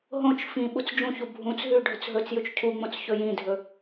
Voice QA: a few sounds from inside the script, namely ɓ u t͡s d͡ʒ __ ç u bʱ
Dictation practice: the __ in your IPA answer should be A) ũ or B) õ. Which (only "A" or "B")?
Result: A